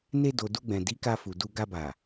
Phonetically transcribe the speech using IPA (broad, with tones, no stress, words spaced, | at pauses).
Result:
ne˧do˨ du˧ɡ͡bɛ̃˨ di˨˦ka˧fu˨ du˧ ɡa˧ba˨